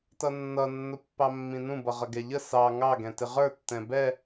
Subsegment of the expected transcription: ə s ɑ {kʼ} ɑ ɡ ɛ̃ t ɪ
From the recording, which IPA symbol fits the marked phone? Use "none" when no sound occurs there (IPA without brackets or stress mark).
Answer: ŋ